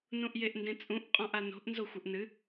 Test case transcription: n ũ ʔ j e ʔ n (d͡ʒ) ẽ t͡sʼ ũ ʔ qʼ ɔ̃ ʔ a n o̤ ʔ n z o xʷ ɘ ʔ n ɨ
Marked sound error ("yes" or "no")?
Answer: yes